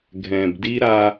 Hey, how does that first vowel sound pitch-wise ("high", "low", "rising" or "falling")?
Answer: low